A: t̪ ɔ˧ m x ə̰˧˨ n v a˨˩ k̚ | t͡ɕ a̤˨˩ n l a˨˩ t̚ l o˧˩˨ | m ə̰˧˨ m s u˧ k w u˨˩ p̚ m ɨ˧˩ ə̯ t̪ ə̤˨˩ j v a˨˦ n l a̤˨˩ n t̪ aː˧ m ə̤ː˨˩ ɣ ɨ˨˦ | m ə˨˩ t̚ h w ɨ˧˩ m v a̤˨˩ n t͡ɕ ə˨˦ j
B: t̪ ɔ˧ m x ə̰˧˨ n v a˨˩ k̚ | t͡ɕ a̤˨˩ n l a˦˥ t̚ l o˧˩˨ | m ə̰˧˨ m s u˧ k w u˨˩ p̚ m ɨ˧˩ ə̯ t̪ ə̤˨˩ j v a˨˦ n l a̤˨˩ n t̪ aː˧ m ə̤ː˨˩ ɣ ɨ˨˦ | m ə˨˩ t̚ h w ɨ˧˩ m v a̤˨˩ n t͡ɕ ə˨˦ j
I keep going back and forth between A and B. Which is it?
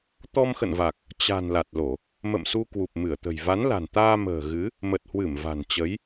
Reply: A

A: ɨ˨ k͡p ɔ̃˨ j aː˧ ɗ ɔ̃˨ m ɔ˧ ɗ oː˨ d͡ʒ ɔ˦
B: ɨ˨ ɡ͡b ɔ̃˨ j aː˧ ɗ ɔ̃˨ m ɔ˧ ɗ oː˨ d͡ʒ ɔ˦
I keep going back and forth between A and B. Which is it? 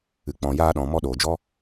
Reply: A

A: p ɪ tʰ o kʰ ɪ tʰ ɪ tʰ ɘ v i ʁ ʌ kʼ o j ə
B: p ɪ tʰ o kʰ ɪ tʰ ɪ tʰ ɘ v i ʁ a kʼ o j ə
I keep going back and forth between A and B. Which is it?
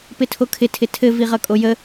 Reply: A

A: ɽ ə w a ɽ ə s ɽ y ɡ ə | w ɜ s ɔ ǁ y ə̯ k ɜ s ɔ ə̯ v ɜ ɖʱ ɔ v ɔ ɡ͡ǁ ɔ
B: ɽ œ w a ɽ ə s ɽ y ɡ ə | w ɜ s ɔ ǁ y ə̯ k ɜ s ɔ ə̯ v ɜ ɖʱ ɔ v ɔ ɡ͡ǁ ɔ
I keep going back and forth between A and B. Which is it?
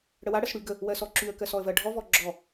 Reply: A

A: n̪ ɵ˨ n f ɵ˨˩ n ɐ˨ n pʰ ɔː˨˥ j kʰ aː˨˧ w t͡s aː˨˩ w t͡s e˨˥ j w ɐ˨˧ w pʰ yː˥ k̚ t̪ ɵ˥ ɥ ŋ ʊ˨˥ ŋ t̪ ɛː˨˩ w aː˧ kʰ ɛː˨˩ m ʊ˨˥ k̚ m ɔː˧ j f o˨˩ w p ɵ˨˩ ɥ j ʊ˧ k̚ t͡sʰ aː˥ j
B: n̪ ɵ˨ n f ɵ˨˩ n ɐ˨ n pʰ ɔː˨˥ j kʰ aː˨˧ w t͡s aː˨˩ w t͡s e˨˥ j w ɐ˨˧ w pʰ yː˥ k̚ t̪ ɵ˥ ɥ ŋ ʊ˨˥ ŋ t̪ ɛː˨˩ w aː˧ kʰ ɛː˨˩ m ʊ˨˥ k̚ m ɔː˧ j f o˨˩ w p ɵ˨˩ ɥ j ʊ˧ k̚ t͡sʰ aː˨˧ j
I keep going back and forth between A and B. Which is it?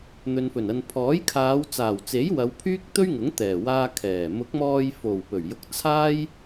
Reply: A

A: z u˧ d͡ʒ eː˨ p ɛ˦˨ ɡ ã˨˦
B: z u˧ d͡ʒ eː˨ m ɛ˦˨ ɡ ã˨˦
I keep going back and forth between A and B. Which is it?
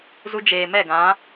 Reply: B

